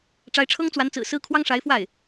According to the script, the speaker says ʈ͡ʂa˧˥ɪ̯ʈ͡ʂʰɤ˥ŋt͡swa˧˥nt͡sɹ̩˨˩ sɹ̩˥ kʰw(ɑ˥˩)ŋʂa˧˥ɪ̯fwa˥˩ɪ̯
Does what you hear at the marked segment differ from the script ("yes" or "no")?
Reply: yes